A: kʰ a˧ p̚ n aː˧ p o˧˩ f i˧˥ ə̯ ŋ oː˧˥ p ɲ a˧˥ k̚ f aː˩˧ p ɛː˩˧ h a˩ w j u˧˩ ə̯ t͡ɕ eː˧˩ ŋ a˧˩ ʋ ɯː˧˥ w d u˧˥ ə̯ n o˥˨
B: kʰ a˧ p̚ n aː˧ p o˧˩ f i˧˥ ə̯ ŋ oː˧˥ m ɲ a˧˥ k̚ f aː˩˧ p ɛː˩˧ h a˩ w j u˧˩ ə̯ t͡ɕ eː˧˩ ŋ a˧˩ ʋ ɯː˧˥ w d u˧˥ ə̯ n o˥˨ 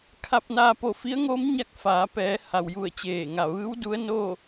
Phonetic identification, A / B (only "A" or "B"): B